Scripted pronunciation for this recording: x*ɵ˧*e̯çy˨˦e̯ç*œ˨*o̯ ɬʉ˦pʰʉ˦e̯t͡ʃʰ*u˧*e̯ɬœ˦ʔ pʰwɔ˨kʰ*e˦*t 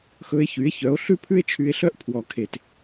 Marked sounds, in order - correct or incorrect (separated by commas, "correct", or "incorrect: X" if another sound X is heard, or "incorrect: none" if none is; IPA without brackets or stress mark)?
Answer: correct, incorrect: œ˨˦, incorrect: y˧, incorrect: e˨